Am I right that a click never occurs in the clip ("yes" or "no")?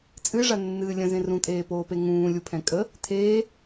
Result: yes